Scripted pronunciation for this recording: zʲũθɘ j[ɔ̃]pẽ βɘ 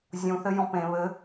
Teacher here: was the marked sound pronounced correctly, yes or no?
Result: yes